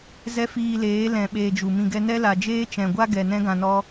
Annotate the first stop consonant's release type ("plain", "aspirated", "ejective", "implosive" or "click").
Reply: implosive